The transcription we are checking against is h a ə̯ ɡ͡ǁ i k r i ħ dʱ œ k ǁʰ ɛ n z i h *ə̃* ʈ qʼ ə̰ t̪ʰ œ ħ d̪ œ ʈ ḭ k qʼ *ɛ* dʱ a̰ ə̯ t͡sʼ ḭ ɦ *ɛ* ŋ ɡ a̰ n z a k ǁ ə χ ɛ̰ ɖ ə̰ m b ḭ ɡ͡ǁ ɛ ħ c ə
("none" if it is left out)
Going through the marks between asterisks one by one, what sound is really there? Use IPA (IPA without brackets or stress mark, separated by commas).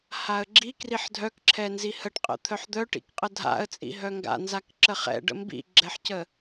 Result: ə, ə, œ